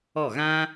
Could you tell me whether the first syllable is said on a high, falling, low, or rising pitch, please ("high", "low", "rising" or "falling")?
falling